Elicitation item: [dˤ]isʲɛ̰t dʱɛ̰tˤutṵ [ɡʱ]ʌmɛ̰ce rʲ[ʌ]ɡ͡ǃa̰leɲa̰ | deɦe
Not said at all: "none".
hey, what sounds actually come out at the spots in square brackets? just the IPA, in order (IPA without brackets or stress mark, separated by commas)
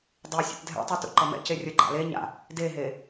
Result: dˤ, ǃ, ʌ